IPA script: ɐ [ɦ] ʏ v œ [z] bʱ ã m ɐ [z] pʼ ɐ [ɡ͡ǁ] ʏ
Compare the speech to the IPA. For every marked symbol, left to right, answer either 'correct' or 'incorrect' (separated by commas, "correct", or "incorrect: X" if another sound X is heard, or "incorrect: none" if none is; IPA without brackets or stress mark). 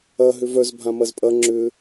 correct, correct, correct, incorrect: ŋ͡ǁ